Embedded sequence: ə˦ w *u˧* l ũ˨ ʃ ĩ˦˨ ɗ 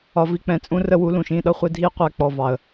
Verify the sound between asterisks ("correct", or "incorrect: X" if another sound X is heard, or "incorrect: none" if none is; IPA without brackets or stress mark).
incorrect: u˨˦